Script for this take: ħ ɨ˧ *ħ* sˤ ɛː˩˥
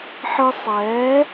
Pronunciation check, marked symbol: incorrect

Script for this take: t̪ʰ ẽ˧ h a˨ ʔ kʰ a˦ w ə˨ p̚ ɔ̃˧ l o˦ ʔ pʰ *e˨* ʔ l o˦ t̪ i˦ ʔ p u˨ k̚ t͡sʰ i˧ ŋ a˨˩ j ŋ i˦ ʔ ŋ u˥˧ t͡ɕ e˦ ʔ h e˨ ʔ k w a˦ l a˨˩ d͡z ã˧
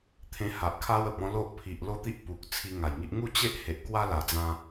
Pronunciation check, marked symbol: incorrect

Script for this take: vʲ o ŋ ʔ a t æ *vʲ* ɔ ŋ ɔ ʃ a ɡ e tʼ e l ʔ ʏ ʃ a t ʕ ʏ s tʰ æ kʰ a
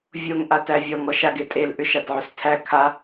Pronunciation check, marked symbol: correct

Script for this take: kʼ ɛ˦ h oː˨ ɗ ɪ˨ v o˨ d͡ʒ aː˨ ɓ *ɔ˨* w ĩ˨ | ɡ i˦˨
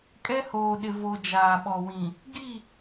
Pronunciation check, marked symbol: correct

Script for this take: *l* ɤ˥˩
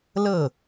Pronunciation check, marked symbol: correct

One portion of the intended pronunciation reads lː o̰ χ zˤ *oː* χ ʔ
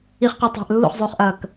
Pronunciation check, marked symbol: correct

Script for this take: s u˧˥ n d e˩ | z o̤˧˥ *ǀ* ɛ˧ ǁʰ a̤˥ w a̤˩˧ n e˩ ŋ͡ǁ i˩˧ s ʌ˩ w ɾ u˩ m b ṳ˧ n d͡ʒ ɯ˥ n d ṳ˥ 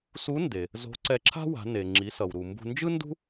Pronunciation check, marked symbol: correct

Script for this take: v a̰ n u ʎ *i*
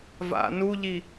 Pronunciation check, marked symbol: correct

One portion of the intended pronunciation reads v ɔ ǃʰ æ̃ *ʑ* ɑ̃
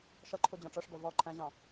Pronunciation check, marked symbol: correct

